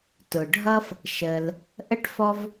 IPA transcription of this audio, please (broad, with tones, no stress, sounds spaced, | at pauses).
t ʊ˩ ɖʱ ʌ˥ f | ʃ ə˨ l | ʔ ə˥ ʈ f ɔ˦ v